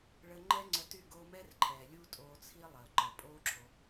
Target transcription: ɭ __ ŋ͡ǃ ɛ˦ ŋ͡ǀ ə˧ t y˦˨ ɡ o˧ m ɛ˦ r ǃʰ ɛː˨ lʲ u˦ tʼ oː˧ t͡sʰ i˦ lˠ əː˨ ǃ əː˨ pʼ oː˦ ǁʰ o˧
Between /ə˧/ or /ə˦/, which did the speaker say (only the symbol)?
ə˧